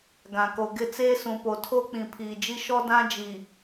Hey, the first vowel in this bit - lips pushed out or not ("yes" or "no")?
no